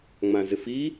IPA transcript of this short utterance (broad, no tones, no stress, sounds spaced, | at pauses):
ŋ͡m ã z ɪ f i